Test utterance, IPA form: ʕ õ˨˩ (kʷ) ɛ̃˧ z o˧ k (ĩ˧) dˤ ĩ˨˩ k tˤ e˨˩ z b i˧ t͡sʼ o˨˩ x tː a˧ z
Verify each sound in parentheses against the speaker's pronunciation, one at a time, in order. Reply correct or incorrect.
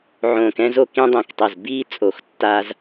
incorrect: k, correct

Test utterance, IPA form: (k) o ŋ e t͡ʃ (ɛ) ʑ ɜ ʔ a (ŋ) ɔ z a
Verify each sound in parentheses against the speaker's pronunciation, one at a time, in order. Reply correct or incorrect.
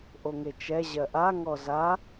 incorrect: ʔ, correct, correct

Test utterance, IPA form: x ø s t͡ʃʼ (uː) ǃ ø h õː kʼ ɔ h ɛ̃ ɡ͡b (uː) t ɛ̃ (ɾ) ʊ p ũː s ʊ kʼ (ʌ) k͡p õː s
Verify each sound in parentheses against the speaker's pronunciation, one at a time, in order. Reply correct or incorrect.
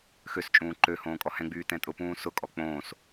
incorrect: ũː, incorrect: yː, incorrect: tʼ, incorrect: ɔ

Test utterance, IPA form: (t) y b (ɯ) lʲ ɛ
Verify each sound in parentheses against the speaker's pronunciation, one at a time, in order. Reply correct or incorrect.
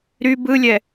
incorrect: ɾ, correct

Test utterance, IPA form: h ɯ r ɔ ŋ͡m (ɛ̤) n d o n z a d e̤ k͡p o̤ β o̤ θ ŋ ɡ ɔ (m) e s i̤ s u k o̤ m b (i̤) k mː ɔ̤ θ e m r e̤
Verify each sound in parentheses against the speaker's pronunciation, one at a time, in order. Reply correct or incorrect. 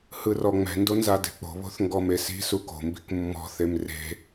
correct, correct, correct

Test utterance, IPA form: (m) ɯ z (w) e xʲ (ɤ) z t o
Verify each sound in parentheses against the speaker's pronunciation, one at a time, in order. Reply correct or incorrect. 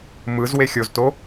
correct, correct, incorrect: o

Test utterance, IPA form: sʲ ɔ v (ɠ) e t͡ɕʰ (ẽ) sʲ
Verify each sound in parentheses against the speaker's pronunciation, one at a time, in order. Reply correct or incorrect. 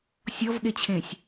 correct, correct

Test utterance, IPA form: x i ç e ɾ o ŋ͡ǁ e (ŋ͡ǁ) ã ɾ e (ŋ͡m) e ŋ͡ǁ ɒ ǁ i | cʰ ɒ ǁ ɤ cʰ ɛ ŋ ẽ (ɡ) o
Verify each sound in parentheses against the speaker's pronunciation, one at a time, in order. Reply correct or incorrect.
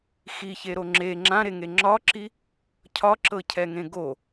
correct, incorrect: ŋ, correct

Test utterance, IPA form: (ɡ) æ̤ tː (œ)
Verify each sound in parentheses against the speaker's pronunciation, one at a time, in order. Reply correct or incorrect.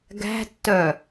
correct, correct

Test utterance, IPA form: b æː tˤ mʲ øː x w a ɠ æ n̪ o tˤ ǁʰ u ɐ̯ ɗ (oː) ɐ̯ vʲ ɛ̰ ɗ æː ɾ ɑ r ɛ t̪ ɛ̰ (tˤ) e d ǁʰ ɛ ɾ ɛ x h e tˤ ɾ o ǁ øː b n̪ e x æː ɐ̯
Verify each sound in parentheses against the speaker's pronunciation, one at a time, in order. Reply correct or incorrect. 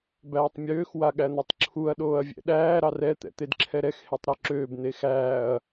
correct, incorrect: t̪

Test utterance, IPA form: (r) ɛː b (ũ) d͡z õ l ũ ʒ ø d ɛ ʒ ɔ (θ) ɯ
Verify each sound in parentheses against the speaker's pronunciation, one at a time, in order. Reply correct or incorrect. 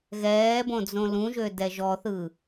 incorrect: ɣ, incorrect: õ, correct

